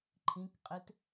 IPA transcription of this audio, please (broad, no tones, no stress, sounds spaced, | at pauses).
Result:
ǃʰ ĩ k qʼ e t